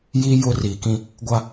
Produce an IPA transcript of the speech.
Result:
j i˦ j ʊ˦ r iː˨ k ĩ˦ | ɡʷ a˦

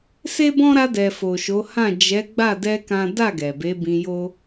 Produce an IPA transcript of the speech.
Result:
s e˦ b ɔ̃˦ ɾ a˧ d ɛ˨ f o˨ ʃ o˨˦ h ã˦˨ d͡ʒ ɛ˨˦ ɡ͡b a˦˨ d ɛ˧ k ã˦ d a˦˨ ɡ ɛ˨ b e˨˦ b ĩ˧ j o˦

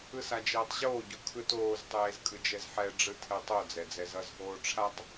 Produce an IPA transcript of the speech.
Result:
ɯ s a d͡ʒ eː tˤ ʑ oː ɟ u kʰ ɯ t oː z tˤ eː z kʼ ɯ d͡ʒ ɛ z ħ ɛ ɖ͡ʐ ɯ tʰ ɛ tˤ o d͡z ɛ d͡z ɛ z ʌ z ɦ oː ʈ͡ʂʰ a tˤ

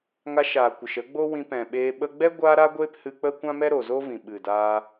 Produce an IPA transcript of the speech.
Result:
ŋ a˧ ʃ aː˨ kʷ ə˨ ʃ ə˨˦ ɡ͡b o˦ w ĩ˧ p ɛ̃˨ ɓ eː˧ ɓ ə˧ ɡ͡b ɛ˦ ɡʷ aː˧ ɾ a˧ ɡʷ eː˧ p h ɨ˧ k͡p ə˦ kʷ ã˦ m ɛ˦ ɾ o˨ z o˦ v ĩ˨ ɓ ɨ˨ d aː˧

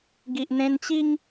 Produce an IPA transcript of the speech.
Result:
ɡ i˨ ʔ n̪ ẽ˦ n t͡ɕ i˦ ŋ

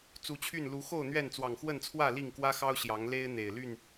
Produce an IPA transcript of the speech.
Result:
t͡s u˨˦ t͡ɕʰ y˥˨ n l u˨˦ x o˥˨ ʊ̯ n̪ ɥ ɛ˥˨ n t͡s w ɑ˨˩ ŋ x w ə˥˨ n t͡sʰ w ä˥˨ l i˥˨ ŋ k w ä˦ x ɑ˦ ʊ̯ ɕ j ɑ˨˦ ŋ l e˦ ɪ̯ n̪ e˨˩ ɪ̯ l y˥˨ n

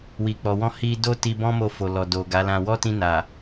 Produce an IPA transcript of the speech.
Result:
w i˨ k͡p ɔ˨ w ɔ̃˧ h i˧ d o˦ t i˧ b ɔ̃˦ m o˧ f o˨ l ɔ˨ d o˨ ɡ a˨˦ l ã˧ w ɔ˦ t ĩ˧ n a˨

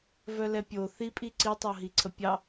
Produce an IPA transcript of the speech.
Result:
v œ l ɛ pʲ o θ i pʼ i ǀ i tˤ o ɦ i ǀʰ ə pʲ ɑ

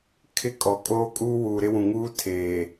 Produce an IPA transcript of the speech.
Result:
kʰ ɪ˦ kʼ ɔ˨ kʼ oː˦ kʼ uː˦ w uː˨ ɾ ɪ˦ w ũ˨ ŋ uː˦ tʰ eː˨

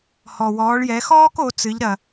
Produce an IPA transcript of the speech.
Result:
h ɔ˩ w ɔː˩˧ ɭ j ɛ˩˧ x ɔː˥ k o˩˧ t͡s ɨ˩˧ ʎ ɾ ɐ˩

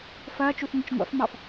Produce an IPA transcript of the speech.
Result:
f ɐː t͡ʃ u θ ŋʷ ɐ t͡ʃ ŋʷ a̰ f m ɑ f

